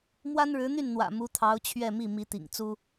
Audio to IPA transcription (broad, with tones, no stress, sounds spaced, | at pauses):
m w a˥ n ɻ ɻ̩˧˥ n̪ y˥˩ n n̪ w ä̰˨˩ m u˧˥ t̪ʰ ɑ˧˥ ʊ̯ t͡ɕʰ ɥ ɛ˥˧ m i˥˩ m i˧˥ t̪ ḭ˨˩ ŋ t͡s u˥